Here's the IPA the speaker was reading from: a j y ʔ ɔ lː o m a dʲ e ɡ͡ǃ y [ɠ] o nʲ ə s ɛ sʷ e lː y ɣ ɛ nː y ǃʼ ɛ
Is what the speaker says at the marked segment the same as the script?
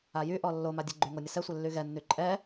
no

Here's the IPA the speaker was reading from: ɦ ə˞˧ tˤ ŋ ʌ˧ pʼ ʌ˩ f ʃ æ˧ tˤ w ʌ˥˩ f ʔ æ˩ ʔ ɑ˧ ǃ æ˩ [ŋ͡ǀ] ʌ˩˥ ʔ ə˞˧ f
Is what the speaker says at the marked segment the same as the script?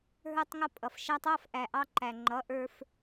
no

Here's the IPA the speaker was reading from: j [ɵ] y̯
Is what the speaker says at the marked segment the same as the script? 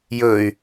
yes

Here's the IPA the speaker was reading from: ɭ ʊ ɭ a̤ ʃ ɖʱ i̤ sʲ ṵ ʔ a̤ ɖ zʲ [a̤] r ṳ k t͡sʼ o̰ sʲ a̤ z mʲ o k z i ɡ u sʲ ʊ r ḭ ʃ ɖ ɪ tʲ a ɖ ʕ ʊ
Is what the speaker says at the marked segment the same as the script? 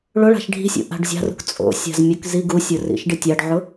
yes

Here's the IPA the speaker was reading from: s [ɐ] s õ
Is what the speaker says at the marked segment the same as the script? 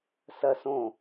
yes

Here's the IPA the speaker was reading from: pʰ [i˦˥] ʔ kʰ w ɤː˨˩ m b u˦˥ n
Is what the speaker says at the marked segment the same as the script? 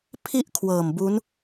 no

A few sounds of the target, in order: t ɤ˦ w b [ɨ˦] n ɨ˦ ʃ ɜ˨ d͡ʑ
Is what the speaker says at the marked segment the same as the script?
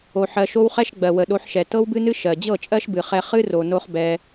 yes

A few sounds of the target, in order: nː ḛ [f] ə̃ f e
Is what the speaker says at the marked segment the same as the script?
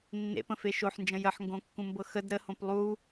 no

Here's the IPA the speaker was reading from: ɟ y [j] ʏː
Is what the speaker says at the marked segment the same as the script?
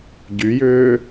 yes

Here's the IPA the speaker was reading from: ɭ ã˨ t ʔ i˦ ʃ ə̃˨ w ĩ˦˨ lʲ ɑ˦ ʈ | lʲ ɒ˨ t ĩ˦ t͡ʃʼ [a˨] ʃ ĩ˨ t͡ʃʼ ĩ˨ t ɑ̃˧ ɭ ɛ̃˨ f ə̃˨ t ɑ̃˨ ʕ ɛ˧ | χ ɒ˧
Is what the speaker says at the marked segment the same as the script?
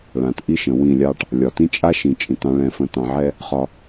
no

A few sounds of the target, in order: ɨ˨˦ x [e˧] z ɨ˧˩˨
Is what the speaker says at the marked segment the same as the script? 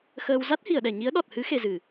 yes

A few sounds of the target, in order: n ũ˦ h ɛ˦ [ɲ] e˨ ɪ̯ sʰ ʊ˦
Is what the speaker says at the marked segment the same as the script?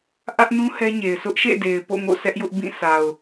yes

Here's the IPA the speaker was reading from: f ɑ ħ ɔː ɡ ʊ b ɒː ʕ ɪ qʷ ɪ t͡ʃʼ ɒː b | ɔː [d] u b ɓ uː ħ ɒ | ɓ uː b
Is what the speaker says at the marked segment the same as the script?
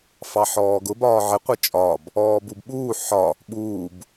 no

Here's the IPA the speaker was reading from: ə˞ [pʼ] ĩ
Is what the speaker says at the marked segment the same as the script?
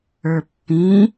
no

